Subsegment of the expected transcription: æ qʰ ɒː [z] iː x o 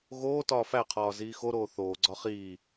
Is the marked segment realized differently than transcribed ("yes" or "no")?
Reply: no